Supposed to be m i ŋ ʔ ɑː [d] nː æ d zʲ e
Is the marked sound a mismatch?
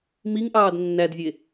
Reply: no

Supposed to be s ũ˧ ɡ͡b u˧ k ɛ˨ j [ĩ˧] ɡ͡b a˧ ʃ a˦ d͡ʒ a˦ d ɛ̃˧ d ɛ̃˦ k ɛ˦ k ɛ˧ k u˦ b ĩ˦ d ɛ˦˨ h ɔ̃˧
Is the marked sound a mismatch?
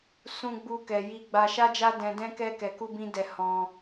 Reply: yes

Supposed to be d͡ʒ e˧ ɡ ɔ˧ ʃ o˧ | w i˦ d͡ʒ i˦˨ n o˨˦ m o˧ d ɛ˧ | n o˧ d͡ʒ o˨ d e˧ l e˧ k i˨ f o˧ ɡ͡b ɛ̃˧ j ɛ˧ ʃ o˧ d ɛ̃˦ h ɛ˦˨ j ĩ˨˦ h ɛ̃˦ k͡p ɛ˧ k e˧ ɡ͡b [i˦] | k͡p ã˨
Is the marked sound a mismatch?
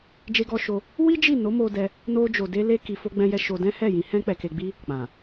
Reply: no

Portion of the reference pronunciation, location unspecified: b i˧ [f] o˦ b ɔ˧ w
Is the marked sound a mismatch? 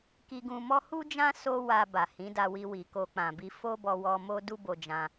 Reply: no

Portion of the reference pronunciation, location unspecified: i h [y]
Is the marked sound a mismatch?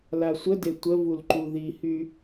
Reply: no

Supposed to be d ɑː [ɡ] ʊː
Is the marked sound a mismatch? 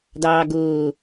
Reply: no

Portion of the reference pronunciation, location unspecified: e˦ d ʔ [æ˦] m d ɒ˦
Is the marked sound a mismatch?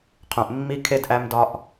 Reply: no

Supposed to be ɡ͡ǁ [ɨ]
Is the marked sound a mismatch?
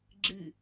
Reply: no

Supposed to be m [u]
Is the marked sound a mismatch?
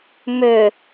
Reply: yes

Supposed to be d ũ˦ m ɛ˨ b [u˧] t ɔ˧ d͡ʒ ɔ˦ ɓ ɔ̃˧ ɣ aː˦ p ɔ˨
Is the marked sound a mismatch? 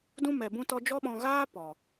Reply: yes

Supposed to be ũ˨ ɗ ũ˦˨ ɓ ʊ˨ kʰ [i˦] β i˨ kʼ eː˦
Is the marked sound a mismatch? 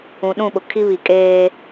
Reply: no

